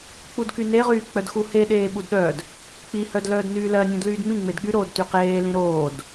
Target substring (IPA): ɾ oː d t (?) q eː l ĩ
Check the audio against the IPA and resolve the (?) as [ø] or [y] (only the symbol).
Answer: y